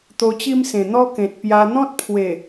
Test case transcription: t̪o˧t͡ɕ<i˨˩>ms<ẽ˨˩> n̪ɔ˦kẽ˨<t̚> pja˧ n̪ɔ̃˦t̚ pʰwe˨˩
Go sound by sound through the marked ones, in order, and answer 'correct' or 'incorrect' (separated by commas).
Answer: incorrect, correct, correct